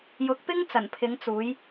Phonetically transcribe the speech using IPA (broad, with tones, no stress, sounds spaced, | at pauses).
j ʊ˨˥ k̚ p ɪ˥ ŋ t͡s ɐ˨˩ n pʰ ɪ˨˧ ŋ t͡s uː˨˧ j